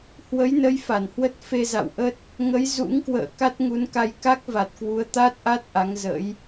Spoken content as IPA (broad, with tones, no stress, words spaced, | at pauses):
hwə˨˦jnə˨˦j fa˧˩nhwə˦˥t̚ fe˧za̰˧˨wʔə˦˥t̚ | ŋə˨˦j zṵ˧˥ŋkwə̰ː˧˨ka˦˥t̚ ŋu˨˦nka˧j ka˦˥k̚va˨˩t̚kwu˨˦ə̯ t̪a˦˥t̚ʔa˦˥t̚ ʔa˨˦ŋ zə̰˧˥j